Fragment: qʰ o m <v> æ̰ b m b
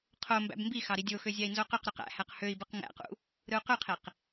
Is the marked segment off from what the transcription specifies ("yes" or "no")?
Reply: yes